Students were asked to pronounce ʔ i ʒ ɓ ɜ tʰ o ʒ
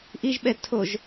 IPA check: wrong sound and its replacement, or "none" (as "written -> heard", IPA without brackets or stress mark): ɜ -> ɛ